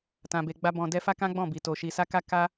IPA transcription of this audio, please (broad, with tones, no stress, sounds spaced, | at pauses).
t ã˨ b e˨ ɡ͡b a˧ b ɔ̃˨ d ɛ˧ f a˦ k ã˦ ɡ͡b ɔ̃˦˨ b i˨ t o˨ ʃ i˨ s a˧ k a˧ k a˦